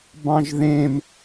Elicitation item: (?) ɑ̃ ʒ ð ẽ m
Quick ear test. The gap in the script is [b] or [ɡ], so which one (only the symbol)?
b